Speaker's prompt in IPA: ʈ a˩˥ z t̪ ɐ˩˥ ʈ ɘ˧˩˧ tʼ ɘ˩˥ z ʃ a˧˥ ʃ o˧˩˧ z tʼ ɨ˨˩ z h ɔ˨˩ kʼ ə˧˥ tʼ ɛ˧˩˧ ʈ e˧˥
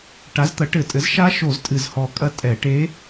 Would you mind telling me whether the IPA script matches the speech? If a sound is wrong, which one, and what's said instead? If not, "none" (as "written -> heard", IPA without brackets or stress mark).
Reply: ə˧˥ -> ɐ˧˥